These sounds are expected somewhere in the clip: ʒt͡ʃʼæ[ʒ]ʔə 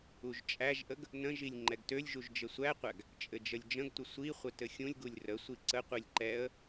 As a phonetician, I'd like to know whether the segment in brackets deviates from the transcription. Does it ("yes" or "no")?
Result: no